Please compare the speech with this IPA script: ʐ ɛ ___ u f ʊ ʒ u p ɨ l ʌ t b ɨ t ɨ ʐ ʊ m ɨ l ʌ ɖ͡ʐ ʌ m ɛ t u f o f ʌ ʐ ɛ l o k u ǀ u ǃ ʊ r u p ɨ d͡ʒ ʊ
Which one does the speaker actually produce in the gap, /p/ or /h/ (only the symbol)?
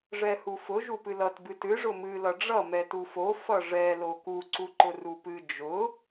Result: h